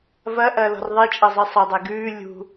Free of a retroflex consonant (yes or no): yes